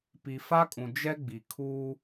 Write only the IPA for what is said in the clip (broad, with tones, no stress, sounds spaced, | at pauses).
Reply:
p i˨ f a˦ kʼ ũ˨ d͡ʒ ɛ˦ ɡ͡b i˨ kʰ uː˦